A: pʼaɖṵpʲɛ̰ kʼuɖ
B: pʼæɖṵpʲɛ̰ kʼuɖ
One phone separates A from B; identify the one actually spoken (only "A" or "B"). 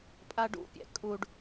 A